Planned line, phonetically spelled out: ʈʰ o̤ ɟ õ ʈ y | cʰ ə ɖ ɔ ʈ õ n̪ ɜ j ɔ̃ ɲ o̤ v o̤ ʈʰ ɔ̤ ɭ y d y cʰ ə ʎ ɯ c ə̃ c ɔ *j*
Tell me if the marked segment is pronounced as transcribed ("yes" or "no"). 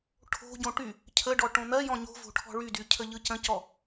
no